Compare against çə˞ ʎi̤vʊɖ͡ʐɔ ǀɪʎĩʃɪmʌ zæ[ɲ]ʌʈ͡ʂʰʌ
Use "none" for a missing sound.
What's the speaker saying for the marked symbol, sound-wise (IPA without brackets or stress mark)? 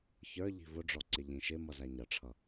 ɲ